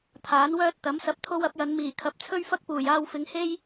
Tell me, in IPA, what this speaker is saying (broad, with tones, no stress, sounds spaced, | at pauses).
t̪ʰ aː˨˥ n w œː˥ t̚ t̪ ɐ˨˥ m s ɐ˧ p̚ t̪ʰ o˥ w ɐ˨˥ p̚ j ɐ˨˧ n m iː˨˩ kʰ ɐ˨˥ p̚ t͡sʰ ɵ˥ ɥ f ɐ˥ k̚ p uː˨˩ j aː˧ w f ɪ˨˧ ŋ h e˥ j